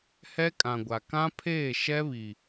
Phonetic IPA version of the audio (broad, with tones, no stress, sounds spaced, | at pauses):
h ɛ˦ kʼ ã˨ ɡʷ a˨ k ã˦ pʰ eː˦˨ ʃ ɛ˦ β i˨